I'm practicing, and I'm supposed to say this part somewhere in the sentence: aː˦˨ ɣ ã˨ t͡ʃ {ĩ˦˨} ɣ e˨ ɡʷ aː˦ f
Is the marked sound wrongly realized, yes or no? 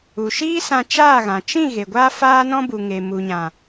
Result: no